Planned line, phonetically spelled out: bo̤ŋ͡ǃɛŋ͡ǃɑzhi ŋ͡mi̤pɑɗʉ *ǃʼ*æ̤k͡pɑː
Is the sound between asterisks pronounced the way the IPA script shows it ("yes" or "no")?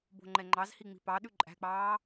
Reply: yes